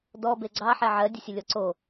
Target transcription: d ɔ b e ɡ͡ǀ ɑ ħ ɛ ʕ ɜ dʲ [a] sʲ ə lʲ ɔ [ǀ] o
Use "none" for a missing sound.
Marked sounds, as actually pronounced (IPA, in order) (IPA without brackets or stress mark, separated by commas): ə, ǀ